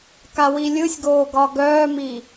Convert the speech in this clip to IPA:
kawilʲɯsʲɡoː ɡɒɡœːmi

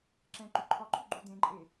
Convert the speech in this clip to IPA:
ǁɛ̃ ǃyǃʰɒǃʰu ɡ͡ǃudẽǃʼe

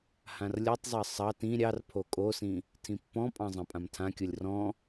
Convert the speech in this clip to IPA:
hãrlʲɔtˤzˤɑ sˤɑt ĩ ɾʲɑr pʰokʼosĩ | tʰĩpːɔ̃pʼɑ̃ zˤɑ̃pʼãmtʰãkʲolʲ rɔ̃

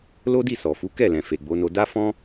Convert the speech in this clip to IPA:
lo˦di˦˨sɔ˨fu˨˦ kɛ˦˨lɛ̃˨ fe˨ɡ͡bo˨˦no˧ da˦ fɔ̃˦

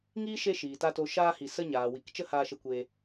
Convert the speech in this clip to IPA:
ŋiː˦ ʃe˧ ʃiː˨ta˧to˧ ʃaː˧hi˨ sə˧ɲaː˨wi˨k t͡ʃə˦haː˧ʃə˧kʷeː˧

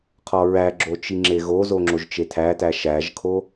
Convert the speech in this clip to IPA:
qʰɒɹæɡ͡ǁo t͡ʃiŋ͡ǁeɣozo ŋ͡ǁoʒt͡ʃetʰætæ ʃæʒkʰo

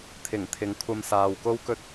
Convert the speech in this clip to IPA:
t̪ʰɪ˨˩ŋt̪ʰɪ˨˧ŋ kʷʰɐ˧msaː˨wko˥wkɵ˥t̚

